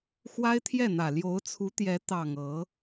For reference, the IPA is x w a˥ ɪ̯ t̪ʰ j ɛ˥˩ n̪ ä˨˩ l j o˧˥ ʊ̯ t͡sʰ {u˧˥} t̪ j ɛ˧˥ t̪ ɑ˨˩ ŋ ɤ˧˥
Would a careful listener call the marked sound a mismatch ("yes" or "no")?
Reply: no